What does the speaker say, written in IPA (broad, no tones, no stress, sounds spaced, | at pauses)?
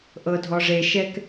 ʔ ɤ dʱ ɔ ʐ e ʃ ɛ k